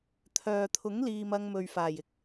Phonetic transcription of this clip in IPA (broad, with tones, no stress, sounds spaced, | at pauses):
t̪ʰ œː˨ t̪ʰ ʊ˨˥ ŋ l iː˨ m ɐ˧ ŋ m ɵ˨ ɥ f aː˨˩ j ɪ˥ k̚